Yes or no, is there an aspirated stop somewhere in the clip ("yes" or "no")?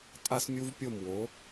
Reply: no